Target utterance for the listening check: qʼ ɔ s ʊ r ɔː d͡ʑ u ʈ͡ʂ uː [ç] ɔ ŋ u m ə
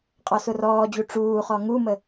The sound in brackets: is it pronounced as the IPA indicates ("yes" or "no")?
no